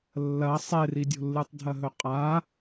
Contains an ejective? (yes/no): yes